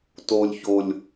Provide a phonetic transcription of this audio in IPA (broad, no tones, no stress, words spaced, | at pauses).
tolʲ çolʲ